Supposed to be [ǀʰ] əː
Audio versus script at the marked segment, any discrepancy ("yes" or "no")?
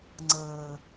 yes